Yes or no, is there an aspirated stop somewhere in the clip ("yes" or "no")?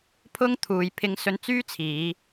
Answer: yes